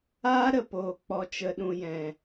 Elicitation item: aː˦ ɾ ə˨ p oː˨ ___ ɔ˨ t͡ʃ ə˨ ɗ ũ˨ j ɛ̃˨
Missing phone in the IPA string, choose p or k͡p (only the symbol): k͡p